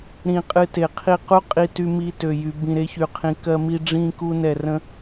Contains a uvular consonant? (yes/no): yes